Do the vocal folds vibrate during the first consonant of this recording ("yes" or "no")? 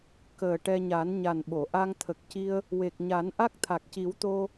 no